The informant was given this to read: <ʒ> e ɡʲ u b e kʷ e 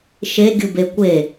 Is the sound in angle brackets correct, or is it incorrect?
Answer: incorrect